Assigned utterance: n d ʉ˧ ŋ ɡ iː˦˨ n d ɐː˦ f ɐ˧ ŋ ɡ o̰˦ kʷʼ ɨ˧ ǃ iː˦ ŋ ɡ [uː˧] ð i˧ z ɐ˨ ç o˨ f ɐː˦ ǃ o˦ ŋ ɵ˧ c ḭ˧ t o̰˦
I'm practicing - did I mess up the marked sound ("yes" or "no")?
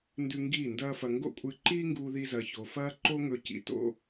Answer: no